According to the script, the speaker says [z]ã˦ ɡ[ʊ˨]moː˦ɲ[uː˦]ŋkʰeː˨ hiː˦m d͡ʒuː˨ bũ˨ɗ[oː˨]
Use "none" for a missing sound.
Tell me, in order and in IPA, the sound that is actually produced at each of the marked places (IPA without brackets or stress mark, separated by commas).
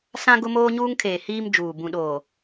s, ʊ˦, uː˦, oː˨